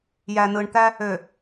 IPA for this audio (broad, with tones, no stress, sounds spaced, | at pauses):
j æ˨ n ɯ˨ ɳ t̪ æ˦ | ø˨